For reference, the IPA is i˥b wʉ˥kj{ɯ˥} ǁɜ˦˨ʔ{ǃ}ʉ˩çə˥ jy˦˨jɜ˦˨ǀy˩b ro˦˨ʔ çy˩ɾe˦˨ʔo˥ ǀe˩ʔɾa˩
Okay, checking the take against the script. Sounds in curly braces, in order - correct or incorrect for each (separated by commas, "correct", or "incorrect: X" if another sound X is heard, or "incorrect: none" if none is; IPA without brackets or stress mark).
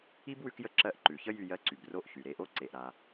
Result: incorrect: ə˥, correct